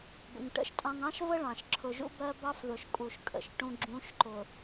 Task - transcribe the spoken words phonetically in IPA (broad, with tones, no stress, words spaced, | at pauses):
bə̰˨ŋʈə̰˦˨ʃtʼɑ̃˦ŋ ɑ̃˦ʃvə˦ ɭɑ̃˨ʃ ǁʰʊ˨ʒṵ˦bɜ˦ bɑ˦fðʊ˨ʃkʼu˨ʃ kʼə̰˨ʃʈũ˦ ɡ͡ǁũ˨˦ʃǃʊ˨